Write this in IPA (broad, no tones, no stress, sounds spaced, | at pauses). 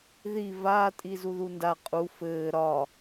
ð i v aː tʼ i z u ð u n d a qʼ u f ɘː ɾ ɒ